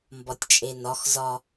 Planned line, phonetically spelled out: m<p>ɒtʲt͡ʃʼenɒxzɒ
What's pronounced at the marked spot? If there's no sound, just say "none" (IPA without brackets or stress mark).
b